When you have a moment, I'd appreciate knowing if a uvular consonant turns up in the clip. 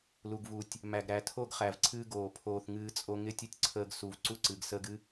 yes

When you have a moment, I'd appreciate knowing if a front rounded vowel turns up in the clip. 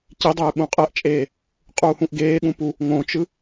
no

